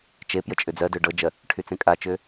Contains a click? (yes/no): no